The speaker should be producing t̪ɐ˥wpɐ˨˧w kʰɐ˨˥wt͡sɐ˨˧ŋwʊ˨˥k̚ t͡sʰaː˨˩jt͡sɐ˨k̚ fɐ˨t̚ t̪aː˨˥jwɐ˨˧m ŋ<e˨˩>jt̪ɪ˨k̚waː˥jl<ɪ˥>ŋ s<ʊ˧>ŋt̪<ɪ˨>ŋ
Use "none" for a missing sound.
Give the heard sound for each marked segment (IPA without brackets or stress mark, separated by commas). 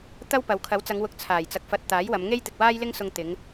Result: e˥, ɪ˥, ʊ˧, ɪ˨˧